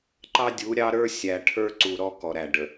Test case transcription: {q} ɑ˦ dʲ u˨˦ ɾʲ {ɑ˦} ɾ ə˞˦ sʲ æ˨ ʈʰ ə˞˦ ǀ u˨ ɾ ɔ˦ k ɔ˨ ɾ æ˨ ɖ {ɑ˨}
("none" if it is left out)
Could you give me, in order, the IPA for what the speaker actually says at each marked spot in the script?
ǃ, ɑ˦, ə˨

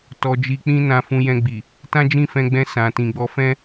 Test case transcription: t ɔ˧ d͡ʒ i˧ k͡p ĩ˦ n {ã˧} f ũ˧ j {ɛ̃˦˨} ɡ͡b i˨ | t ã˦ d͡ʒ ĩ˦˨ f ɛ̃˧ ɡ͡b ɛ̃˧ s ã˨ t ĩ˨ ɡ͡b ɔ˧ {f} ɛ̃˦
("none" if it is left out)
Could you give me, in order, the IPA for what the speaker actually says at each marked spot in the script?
ã˧, ɛ̃˧, f

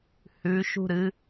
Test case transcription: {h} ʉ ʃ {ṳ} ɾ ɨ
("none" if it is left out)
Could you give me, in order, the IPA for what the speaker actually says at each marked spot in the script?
h, ṳ

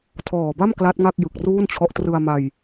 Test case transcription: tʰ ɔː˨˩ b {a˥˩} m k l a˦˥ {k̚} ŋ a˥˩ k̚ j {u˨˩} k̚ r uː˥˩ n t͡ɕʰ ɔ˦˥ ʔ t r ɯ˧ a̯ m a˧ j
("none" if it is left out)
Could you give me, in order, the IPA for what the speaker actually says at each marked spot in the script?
a˥˩, t̚, ɯ˨˩

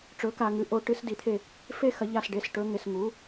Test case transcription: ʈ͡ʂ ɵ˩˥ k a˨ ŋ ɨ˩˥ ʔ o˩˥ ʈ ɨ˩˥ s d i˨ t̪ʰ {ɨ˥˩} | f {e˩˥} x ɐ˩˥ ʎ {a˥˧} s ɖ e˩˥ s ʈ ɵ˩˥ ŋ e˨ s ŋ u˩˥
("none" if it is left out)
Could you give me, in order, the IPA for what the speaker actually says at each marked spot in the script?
e˥˩, e˦˥, a˥˩

